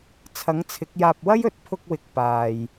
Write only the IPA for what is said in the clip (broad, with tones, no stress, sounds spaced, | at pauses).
t͡sʰ ɐ˨˥ ŋ t͡sʰ ɪ˨˥ k̚ j aː˧ p̚ w ɐ˥ j ɵ˨ t̚ pʰ ʊ˧ k̚ w ɪ˨˥ k̚ p aː˨ j